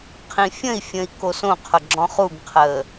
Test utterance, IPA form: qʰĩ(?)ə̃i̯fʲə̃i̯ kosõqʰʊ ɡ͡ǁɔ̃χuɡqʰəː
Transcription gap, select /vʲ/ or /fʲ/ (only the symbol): fʲ